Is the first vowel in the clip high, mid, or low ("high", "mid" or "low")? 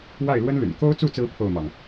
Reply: low